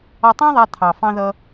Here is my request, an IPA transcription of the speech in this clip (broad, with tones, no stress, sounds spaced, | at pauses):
ɒ˧ tˤ ɑ̃˥ ðˤ æ˧ t̪ʰ ɑ˩ f ɑ̃˧ ð ʌ˧